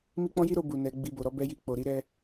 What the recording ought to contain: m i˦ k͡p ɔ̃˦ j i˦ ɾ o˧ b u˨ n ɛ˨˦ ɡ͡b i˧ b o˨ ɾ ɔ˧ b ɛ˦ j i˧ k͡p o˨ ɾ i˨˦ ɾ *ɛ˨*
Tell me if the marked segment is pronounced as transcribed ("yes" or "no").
no